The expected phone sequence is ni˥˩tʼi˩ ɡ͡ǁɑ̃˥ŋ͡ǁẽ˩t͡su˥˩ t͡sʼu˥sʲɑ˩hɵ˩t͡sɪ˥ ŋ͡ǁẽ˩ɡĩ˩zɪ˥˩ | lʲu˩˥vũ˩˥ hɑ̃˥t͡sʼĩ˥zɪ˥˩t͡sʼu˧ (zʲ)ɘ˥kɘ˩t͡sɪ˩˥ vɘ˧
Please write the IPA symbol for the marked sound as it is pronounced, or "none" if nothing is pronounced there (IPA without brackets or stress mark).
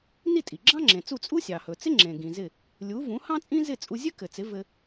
zʲ